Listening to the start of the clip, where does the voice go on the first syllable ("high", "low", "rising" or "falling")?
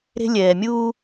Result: high